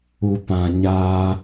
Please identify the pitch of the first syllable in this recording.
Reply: low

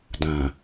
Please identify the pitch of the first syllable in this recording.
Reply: low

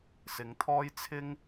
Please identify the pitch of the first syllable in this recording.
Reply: rising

